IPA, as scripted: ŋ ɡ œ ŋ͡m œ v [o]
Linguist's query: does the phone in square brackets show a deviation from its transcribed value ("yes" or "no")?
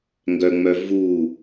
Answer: yes